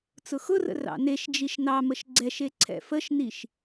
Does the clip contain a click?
yes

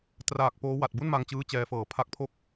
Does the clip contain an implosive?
no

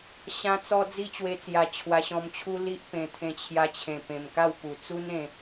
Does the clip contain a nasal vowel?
yes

